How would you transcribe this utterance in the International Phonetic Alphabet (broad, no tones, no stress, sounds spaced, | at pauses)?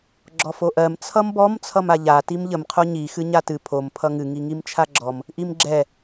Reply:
ɡ͡ǁ ɔ f o ʔ ɜ m t͡sʰ ʌ m b ɔ m t͡sʰ ʌ m a ʎ a t i m ʎ ə m qʰ o ɲ i x ɨ ɲ a t ɨ pʰ o m pʰ ʌ ŋ ɨ ŋ i ŋ i m t͡ʃʰ a ɡ͡ǁ ɔ m | ʔ i m ɡ͡ǁ ɛ